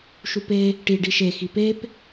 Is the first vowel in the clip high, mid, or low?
high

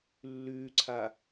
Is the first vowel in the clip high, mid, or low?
high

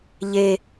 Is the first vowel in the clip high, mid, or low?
mid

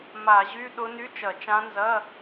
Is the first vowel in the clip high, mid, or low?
low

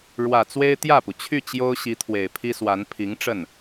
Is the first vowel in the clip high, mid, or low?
low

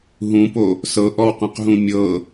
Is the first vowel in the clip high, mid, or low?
high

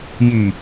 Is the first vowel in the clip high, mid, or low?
high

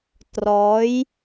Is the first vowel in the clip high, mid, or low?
mid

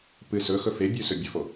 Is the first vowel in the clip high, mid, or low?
high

